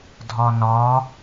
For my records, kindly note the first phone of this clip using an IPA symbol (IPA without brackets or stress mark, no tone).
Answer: dʱ